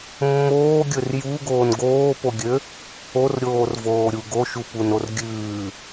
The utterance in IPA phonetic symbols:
mːoːɡʲɵr juɡoːn ɡoːpoɡʲø | orɾʲoːrvoːɾʲu ɡoʃupunor ɡʲʉː

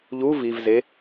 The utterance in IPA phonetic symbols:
ʎu vivze

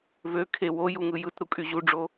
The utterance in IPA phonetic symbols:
vø kʰe wo juŋɯjɯtɾu kʼyʑuɖ͡ʐo

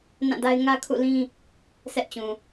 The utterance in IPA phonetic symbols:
nã˦˨da˦ɪ̯ ŋä˦ kʰṵ˦˨lĩ˦ | sʰɛ˦ʔt͡ɕũ˨

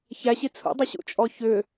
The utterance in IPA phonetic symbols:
çæɕi t͡sʰṵdˤʏɕṵt͡ʃʼɔ çʏ

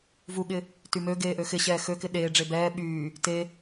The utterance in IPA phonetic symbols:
vuɠɪ | tymøɡeː ʔøxɪɕɛː xøkɪ ɗeːɖ͡ʐe bɛː ɓyː | te

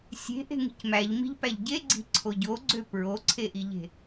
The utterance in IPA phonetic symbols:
sʲe̤ʔe̤ŋi̤c mæʎmi̤ʎpæʎ ɟeɡ͡ǀi̤ǀʰo ɟoɡ͡ǀø pɹoǀʰeʔiʎe̤

